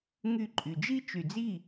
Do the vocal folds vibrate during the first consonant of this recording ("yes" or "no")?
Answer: yes